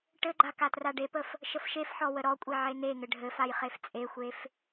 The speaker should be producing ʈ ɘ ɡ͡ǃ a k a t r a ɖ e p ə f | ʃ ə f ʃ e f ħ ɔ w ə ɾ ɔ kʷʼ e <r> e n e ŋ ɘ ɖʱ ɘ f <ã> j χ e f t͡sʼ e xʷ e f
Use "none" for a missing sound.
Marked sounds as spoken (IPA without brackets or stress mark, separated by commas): ʕ, a